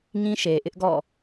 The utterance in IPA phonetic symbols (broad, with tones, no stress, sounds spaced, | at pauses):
ŋ ĩ˦ ʃ e˨ ʔ ɪ˦ ʔ ɡ ɔ̰˦˨